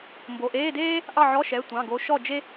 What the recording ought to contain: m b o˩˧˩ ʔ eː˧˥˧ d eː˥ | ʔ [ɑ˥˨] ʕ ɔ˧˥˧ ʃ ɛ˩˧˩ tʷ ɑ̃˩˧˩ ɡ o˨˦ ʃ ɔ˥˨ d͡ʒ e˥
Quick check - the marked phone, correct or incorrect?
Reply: correct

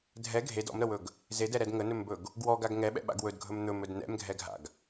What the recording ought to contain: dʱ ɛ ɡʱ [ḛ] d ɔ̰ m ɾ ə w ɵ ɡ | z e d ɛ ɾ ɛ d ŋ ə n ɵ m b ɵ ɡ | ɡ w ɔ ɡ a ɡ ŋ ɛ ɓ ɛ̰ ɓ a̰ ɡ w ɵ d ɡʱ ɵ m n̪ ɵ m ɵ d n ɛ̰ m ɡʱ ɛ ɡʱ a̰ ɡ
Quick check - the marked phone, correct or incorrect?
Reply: incorrect: e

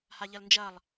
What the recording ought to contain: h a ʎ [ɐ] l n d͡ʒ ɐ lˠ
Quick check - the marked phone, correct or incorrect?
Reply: correct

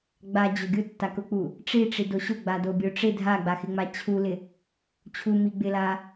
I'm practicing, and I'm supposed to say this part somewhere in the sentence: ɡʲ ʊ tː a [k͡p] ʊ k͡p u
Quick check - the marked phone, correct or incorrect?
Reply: incorrect: k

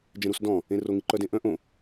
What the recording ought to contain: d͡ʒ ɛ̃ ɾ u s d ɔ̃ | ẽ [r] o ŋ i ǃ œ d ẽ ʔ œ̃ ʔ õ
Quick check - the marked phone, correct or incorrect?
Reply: correct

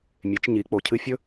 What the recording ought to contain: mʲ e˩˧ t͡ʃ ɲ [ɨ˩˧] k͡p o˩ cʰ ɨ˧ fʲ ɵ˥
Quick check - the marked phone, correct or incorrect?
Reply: incorrect: i˩˧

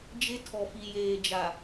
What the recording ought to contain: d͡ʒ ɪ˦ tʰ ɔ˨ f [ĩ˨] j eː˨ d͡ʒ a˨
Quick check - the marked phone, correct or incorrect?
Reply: incorrect: i˨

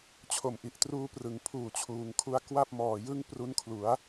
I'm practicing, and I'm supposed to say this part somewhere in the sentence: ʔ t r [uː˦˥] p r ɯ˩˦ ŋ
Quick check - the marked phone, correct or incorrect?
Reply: correct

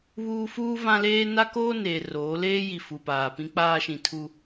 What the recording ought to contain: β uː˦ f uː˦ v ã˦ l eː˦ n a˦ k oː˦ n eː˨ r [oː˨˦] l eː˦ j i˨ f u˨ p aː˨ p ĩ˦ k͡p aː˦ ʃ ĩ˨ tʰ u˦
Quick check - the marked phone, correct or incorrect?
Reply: correct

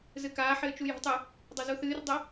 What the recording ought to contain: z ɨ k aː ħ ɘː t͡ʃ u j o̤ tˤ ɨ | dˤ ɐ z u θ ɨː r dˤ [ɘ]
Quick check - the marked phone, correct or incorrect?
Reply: correct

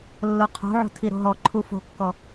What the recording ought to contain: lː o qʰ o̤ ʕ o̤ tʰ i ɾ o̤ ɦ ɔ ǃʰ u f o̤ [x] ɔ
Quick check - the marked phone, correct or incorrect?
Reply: incorrect: kː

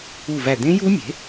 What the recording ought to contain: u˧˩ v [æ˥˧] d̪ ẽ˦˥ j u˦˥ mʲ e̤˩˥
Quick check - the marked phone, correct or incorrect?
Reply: incorrect: æ˧˩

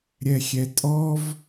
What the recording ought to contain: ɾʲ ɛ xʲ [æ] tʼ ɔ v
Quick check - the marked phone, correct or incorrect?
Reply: incorrect: ɛ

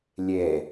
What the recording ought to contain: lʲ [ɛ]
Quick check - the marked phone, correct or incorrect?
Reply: correct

